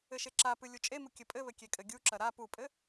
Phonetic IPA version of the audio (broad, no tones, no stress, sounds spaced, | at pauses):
ɘ ʃ e ǁ a p ɨ lʲ u t͡ʃʼ e m u kʲ ɘ pʼ ɘ β ɘ kʲ e kʼ ɘ ɡʲ u ǁ ɐ ɾ a p u pʼ ɘ